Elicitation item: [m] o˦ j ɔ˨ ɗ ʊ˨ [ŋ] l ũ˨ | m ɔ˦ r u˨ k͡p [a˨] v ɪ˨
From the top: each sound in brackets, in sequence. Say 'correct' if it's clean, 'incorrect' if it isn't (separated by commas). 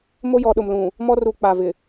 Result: correct, incorrect, correct